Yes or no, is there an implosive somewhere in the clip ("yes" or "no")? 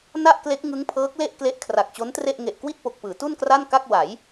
no